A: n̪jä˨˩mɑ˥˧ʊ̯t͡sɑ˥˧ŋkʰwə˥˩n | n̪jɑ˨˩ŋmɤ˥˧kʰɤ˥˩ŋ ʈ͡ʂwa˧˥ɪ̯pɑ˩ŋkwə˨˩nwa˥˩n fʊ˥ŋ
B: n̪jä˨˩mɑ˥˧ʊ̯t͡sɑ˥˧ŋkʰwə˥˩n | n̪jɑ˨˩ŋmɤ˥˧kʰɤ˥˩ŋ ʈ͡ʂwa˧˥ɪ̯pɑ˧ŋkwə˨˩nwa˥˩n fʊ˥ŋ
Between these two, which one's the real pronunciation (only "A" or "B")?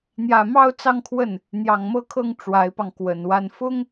B